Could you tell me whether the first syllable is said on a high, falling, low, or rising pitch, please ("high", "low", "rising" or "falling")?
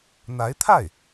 rising